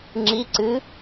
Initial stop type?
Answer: click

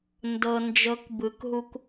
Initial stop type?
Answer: plain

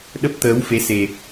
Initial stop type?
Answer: implosive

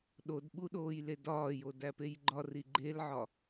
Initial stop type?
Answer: implosive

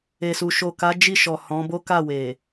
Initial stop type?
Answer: plain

